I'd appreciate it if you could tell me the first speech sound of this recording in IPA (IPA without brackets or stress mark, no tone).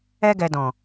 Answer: ɛ